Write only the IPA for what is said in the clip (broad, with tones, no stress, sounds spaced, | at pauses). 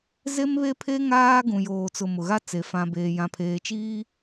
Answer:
z e˦ m β e˦ pʰ e˦ ŋ aː˦ ɡ ũ˨ j oː˨ t͡s ʊ˨ m ʊ˨ ɣ a˦ t͡s e˨ f ã˨ b eː˨ j ã˨ pʰ eː˨ t͡ʃ iː˦